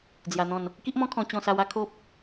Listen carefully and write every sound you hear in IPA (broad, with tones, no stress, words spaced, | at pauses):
d͡zja˧n̪ɔ̃˥˧n | ki˦ʔmɔ̃˦kʰɔ̃˧ t͡ɕɔ̃˥˧ sa˧wa˦ kʰo˦p̚